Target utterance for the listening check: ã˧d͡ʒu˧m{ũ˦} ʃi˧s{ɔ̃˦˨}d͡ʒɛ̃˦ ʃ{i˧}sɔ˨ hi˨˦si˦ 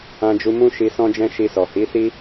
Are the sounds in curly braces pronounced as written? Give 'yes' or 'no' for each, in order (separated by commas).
yes, no, yes